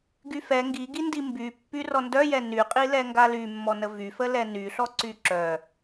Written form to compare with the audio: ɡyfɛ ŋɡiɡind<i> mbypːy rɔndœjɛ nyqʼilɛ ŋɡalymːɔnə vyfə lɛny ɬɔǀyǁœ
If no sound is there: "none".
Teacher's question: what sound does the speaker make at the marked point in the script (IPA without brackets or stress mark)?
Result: i